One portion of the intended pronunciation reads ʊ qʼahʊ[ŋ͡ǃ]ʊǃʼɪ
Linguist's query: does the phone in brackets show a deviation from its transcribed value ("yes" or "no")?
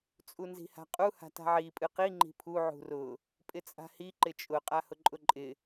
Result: yes